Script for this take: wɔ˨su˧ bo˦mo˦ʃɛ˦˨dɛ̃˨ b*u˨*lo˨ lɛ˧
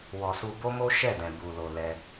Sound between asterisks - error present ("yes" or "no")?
no